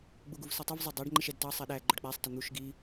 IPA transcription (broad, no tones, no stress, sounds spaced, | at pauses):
ɡ͡b u ɡ u v s ʌ tˤ ɪ v zˤ ʌ dˤ ɑ ɖ ŋ͡ǃ ɪ ʃ ɛ d t ɑ sˤ ɛ ɗ æ ɡ͡ǃ ʊ ɖ k͡p æ sˤ t ə n̪ u ʃ ɡ i